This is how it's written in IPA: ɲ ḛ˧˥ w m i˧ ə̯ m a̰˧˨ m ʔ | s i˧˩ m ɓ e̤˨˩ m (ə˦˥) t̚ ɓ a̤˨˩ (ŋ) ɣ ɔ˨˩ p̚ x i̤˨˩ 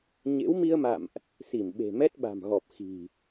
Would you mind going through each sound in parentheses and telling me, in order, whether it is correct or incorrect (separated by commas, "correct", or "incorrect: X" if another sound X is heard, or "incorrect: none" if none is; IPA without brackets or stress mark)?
incorrect: ɛ˦˥, incorrect: m